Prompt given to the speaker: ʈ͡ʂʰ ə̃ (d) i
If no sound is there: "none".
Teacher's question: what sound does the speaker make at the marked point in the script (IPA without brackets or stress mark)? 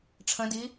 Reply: d